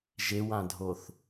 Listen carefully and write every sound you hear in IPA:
ʒewãdʱoθ

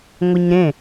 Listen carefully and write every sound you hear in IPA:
ŋʷɛɲɾẽ

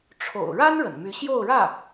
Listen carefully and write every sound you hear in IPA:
ʈ͡ʂʰo̰˨˩ʊ̯ ɻa˥n ɻə̰˨˩nmy˧˥ ɕjo˥˧ʊ̯ɻä˥˩

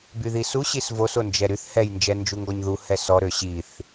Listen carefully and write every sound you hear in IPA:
byðisu ɕisvos ond͡ʒɛɾyθ hɛj nd͡ʒɛnd͡ʒuŋɡɔɲðu hɛsɔ ɾøɕiθ

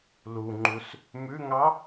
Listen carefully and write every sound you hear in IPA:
luŋ͡ǃus | mʉŋɑ

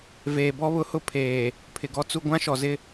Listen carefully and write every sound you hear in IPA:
veː˨bɔ˦βʊ˦hʊ˦ pʰeː˨ | pʰɪ˨ɡɔ˦t͡su˦ ɡʷã˦ʃɔ˨zɪ˦

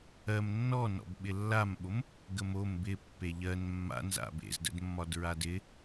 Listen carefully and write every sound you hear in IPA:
ɜm nːɔnɔ̰b ɓɪlːamɓom | ɡəmom bɪ pːeʎɜn mːa̰nza̰ bḛzdə̰dmːɒd ɹadɪ

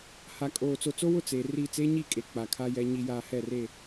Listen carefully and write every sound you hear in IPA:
ha˨kʼoː˨ t͡so˨t͡so˦wʊ˦˨ t͡seː˨ ri˦˨ t͡seː˦ɲi˦˨kʼe˨ k͡pa˨kʰa˦jɛ˦ ɲi˦jaː˦ hɛ˦˨re˦˨

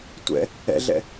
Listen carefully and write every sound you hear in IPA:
tʷɛ̰ | ɛ̰ɮɛ̰

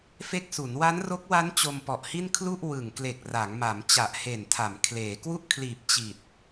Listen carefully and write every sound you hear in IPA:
fe˦˥k̚su˩˦n wa˦˥nro˦˥k̚wa˦˥n t͡ɕo˧mpɔ˨˩ʔhi˥˩n kʰlu˥˩ʔ wɯ˨˩ŋ kle˨˩k̚ra˩˦ŋma˩˦m t͡ɕa˨˩ʔhe˨˩ntʰa˩˦m kʰleː˩˦ kwu˥˩ʔkʰliː˨˩p̚ t͡ɕi˨˩t̚

